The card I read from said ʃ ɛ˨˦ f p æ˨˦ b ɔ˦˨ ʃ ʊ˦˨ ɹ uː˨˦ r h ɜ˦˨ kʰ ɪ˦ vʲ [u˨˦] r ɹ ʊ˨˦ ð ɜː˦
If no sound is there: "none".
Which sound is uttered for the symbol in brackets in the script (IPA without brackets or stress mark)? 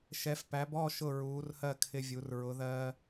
u˨˦